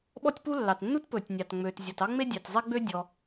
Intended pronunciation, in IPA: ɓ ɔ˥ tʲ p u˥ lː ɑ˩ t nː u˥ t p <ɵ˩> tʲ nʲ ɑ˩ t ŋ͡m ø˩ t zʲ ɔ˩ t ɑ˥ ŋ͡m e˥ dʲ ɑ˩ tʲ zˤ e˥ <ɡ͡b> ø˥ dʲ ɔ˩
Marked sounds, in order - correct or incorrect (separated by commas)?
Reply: correct, correct